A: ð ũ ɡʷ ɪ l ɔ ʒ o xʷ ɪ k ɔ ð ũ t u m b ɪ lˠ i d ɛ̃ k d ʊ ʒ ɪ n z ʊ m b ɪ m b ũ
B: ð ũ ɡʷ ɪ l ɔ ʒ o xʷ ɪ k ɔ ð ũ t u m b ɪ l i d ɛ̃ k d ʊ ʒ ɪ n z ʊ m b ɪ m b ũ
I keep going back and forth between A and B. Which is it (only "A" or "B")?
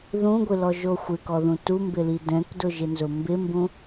B